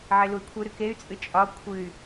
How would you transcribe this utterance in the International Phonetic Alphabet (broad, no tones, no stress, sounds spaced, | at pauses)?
ʕ e l u i̯ kʷʰ ɨ ɾ ɨ k e y̯ t͡sʼ ɨ t͡ʃʼ ɒ kʷʰ ɨ y̯